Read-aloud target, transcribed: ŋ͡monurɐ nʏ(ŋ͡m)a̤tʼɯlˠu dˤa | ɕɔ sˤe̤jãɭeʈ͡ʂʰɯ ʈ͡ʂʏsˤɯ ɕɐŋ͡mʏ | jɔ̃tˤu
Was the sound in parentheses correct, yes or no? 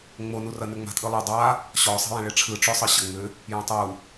yes